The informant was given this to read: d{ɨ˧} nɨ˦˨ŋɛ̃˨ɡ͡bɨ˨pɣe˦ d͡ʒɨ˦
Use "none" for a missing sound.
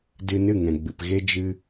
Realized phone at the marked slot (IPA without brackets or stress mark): ɨ˧